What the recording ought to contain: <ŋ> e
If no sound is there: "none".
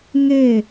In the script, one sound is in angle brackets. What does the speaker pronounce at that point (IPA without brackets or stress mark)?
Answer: ŋ